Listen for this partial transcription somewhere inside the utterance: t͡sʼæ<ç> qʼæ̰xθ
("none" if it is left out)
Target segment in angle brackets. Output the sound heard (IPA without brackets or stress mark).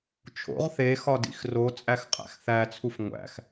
x